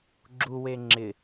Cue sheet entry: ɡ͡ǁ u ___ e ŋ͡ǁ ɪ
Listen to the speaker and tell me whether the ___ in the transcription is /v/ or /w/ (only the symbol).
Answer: w